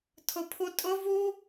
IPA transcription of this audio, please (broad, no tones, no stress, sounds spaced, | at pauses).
tʰ ʊ pʰ u tʼ ʊ v u